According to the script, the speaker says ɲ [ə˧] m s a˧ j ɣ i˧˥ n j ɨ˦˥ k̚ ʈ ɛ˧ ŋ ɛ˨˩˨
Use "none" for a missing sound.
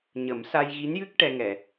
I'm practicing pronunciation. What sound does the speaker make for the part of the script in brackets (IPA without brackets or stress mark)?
ə˨˩˦